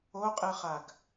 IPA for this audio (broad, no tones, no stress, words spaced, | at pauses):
oqʼɨχaɡ